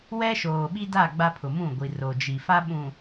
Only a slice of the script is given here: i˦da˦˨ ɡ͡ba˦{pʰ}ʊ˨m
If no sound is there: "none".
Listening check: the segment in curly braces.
pʰ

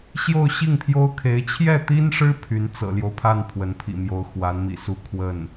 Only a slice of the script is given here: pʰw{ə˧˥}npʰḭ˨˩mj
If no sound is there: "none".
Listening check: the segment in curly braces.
ə˧˥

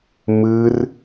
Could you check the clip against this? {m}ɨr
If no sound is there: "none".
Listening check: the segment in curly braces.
m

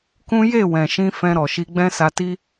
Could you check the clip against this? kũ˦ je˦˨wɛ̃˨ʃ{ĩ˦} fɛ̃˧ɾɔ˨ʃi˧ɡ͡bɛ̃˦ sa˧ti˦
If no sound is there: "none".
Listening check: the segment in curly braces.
ĩ˧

